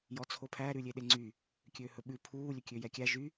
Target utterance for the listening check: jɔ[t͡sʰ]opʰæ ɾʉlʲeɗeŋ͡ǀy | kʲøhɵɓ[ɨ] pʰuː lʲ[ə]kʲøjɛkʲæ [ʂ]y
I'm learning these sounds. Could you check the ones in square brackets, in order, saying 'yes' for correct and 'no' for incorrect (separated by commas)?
yes, no, no, no